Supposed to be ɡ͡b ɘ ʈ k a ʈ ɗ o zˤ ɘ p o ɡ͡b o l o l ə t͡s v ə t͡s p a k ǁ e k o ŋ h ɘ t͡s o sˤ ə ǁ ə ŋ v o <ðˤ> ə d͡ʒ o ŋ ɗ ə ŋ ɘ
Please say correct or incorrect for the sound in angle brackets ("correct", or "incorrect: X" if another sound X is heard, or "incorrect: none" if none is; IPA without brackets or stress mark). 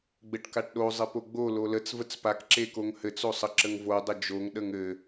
incorrect: dˤ